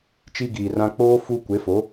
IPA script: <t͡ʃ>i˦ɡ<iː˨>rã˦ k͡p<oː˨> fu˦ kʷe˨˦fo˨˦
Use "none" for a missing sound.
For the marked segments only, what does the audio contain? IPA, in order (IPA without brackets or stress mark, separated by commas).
t͡ʃ, iː˨, oː˦